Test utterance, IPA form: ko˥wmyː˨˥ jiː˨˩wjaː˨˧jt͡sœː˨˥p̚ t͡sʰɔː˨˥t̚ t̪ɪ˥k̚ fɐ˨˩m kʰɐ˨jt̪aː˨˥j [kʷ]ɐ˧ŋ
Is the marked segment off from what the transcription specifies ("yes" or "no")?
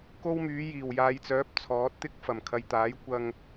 no